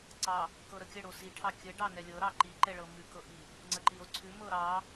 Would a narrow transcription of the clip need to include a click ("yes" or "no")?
yes